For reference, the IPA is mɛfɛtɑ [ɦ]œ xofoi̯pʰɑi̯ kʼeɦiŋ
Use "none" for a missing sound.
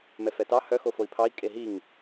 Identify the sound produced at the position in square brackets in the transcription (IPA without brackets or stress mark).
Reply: h